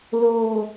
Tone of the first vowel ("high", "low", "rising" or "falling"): low